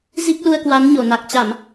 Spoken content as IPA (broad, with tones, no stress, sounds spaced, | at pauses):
z i˦˥ k̚ l u˧ ə̯ k w a˨˦ n ɲ o˧˩ n a˨˩ k̚ t͡ɕ a˧˩˨ m